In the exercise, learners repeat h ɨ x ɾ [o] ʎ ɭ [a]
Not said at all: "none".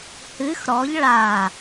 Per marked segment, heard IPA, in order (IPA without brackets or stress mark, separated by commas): ɔ, a